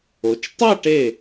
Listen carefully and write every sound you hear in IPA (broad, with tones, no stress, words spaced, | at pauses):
o˩˧t͡ʃ tˤa˥˧ʈe˧˩